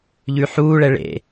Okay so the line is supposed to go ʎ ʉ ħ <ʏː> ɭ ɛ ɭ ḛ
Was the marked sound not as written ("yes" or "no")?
yes